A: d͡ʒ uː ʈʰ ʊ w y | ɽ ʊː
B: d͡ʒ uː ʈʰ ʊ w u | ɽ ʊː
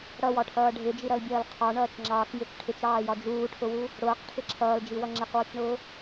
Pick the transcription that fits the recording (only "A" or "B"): B